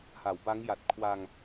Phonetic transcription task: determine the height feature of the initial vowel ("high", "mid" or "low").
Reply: low